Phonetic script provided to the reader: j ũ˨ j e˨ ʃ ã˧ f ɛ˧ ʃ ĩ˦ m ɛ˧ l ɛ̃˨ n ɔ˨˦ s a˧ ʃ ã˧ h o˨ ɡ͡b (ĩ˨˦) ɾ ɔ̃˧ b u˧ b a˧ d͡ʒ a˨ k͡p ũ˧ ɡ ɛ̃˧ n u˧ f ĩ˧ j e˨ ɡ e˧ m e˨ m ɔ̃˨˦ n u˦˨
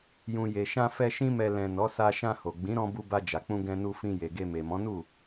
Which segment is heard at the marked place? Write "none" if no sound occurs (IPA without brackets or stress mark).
ĩ˨˦